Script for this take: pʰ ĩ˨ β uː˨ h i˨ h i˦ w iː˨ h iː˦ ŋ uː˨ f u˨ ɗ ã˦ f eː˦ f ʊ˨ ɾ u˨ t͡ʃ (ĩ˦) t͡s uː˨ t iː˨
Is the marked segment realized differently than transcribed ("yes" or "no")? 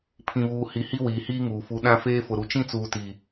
no